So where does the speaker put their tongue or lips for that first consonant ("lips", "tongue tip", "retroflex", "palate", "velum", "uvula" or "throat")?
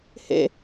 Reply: throat